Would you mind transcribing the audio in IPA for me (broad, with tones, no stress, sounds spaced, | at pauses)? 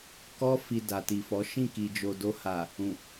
k ɔ˦ f i˧ d a˨ t i˨ f ɔ˨˦ ʃ ĩ˦˨ k i˨ d͡ʒ o˨ d o˧ h a˨ | ũ˨